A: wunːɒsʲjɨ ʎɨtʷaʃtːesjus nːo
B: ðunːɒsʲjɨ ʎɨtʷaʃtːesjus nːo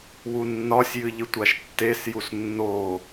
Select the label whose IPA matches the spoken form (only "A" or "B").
A